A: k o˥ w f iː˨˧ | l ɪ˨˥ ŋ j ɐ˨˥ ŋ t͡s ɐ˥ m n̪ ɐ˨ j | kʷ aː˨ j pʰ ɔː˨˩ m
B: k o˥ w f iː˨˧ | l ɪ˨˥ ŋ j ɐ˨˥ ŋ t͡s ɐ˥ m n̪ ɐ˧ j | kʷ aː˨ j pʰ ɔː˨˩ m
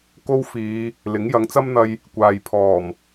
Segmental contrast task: B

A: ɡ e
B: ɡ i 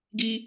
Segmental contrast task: B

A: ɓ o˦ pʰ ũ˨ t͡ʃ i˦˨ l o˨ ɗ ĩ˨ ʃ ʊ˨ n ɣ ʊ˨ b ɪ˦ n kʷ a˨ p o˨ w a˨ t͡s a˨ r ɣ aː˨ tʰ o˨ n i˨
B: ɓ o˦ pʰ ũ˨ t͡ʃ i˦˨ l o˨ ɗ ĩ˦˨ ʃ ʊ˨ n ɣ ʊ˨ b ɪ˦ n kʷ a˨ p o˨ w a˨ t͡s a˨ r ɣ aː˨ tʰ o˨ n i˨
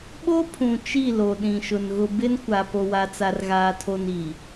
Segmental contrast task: A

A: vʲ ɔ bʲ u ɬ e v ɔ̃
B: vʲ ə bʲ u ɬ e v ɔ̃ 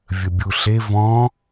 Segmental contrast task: B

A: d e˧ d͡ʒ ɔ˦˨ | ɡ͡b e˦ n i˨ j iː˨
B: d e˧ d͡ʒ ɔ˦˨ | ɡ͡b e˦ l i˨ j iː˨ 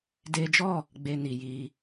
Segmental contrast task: A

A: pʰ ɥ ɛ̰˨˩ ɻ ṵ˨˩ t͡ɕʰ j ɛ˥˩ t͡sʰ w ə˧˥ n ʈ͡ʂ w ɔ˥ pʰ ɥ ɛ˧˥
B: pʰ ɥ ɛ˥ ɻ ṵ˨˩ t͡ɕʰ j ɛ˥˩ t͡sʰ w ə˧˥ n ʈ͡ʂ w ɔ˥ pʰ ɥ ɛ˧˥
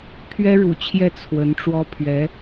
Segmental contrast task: B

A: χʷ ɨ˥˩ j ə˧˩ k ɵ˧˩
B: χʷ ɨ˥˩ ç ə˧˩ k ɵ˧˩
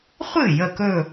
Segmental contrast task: A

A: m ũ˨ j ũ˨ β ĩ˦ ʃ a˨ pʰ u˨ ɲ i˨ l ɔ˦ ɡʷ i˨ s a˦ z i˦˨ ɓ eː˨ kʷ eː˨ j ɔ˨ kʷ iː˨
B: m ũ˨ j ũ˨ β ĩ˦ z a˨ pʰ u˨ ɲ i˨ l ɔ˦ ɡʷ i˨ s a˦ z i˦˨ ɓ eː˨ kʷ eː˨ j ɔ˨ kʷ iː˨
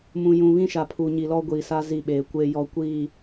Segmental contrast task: A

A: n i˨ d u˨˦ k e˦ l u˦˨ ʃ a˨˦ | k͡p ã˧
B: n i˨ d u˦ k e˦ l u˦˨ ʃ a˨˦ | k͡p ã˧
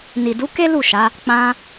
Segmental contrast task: A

